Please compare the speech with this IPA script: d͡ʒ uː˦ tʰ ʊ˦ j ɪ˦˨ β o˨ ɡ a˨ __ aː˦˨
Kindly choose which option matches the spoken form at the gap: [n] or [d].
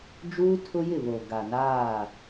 n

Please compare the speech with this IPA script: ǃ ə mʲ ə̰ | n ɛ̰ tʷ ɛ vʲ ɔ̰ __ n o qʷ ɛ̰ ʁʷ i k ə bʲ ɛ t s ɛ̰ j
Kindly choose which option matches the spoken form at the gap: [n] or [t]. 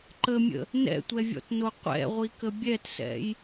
t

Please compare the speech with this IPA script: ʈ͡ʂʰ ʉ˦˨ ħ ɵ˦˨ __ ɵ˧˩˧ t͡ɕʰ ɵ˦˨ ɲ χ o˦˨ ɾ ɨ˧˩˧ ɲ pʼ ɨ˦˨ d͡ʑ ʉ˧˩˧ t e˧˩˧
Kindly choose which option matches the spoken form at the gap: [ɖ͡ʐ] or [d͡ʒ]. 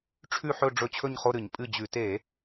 ɖ͡ʐ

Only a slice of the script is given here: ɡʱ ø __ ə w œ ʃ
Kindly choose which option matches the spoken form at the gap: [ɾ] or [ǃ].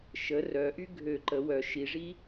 ǃ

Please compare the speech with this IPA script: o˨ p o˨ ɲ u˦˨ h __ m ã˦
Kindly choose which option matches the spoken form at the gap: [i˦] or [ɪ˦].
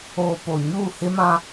ɪ˦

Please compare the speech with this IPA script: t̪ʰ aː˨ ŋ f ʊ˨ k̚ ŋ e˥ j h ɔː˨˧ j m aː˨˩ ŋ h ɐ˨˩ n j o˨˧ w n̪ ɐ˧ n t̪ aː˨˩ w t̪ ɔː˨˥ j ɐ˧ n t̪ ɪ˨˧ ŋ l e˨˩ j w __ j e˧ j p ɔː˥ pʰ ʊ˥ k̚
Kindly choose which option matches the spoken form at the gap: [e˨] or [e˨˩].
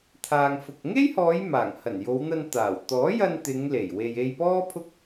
e˨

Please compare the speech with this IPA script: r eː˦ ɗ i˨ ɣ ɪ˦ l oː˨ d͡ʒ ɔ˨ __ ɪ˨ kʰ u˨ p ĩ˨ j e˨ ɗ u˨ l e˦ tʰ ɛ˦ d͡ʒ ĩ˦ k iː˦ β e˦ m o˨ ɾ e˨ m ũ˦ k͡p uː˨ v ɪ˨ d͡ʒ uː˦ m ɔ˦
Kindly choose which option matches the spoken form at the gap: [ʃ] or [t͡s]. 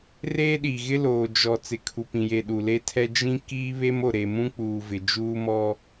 t͡s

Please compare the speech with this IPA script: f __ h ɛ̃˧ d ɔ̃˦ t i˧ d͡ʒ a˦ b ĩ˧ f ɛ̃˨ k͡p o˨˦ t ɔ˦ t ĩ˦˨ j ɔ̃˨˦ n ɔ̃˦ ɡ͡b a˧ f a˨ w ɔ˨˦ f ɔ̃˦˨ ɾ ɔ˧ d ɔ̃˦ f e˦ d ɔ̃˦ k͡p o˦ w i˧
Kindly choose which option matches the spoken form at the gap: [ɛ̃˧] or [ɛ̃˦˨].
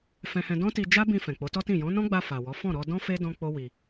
ɛ̃˧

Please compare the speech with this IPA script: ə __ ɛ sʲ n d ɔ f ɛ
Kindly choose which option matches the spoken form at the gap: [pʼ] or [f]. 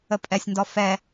pʼ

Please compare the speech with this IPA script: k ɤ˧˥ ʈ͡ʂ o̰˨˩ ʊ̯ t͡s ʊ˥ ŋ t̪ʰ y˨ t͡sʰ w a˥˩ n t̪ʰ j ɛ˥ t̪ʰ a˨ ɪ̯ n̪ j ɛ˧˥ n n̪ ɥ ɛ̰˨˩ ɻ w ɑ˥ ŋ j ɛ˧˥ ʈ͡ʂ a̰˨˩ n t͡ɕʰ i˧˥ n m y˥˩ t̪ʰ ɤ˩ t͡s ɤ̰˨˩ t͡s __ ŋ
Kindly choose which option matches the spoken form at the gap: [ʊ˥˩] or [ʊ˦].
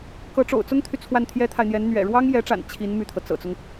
ʊ˦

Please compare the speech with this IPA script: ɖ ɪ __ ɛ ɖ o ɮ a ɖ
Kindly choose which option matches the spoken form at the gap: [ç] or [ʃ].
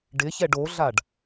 ç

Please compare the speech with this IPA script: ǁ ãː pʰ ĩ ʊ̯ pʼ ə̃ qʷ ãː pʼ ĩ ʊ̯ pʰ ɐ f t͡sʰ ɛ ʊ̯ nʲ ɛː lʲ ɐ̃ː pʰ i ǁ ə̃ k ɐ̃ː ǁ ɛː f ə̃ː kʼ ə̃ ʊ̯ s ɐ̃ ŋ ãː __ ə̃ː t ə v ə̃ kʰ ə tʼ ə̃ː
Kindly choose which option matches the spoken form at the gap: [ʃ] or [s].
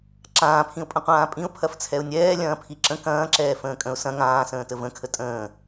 s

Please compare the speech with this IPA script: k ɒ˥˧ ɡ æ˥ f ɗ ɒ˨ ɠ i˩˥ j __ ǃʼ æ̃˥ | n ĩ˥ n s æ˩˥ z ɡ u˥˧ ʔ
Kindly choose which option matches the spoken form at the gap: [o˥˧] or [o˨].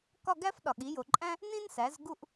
o˨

